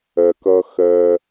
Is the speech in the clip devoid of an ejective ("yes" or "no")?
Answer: yes